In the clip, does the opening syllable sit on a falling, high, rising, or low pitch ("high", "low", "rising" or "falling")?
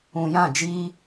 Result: low